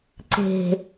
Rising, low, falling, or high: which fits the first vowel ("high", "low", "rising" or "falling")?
low